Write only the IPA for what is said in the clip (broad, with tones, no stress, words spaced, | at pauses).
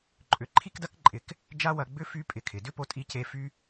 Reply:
ǃʼʏ˧ ǃʰi˦kdɐ˦kǃʼɪ˨˦k | d͡ʒa˦wɐ˧ ɡ͡bʏ˦ fy˦ pʼɪ˧kʰɪ˨ dʏ˦po˧ tʼi˦ce˦ fy˧